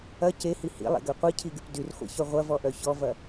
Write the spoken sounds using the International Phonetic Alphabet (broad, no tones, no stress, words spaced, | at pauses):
ɐ cehi hḭlˠḛɡø qʷicʰiɡyp dyrχʷḭçœ ʁʷɐvɔʔœ çɔvɐ